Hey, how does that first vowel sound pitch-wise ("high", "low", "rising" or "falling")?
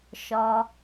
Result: low